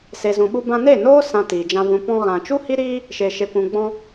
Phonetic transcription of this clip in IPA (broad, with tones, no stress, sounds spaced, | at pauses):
s e˨ z ũ˨ ɓ u˧ b ã˧ n e˦˨ n oː˦ s ã˧ t iː˨ d͡ʒ ã˧ v ũ˨ p ɔ̃˧ ɣ ã˨ t͡ʃ u˦ h i˦ ɾ iː˦ | ʃ e˨ ʃ e˨ kʷ ũ˨ ɡ͡b ɔ̃˧